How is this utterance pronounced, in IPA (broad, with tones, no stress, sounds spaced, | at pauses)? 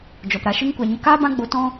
d͡ʒ ɔ˨ p ɾ a˧ ʃ ɨ˦ ŋ kʷ a˧ ɲ ə˧ k aː˦ b ã˦ ɡ͡b o˧ t ɔ̃˦